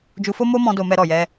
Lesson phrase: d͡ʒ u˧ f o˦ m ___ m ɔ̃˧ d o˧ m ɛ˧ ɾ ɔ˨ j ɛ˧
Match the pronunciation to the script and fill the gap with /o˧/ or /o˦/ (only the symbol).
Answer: o˦